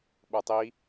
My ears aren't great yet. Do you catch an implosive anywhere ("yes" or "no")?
yes